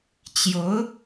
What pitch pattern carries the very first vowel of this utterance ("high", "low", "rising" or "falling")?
rising